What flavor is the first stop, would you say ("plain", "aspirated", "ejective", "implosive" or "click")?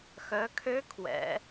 aspirated